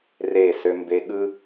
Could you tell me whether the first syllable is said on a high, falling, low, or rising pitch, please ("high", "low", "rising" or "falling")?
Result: falling